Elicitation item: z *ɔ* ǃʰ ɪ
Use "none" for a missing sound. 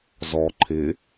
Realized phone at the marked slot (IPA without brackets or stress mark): ɔ